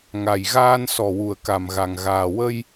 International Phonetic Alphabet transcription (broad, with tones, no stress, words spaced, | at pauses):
ŋa˨˩jɣaː˧n sɔ˨˩wu˨˩ə̯ka˨˩mɣa˨˩ŋ ɣaː˨˩wə˧j